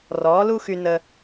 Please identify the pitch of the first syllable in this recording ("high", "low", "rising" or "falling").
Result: rising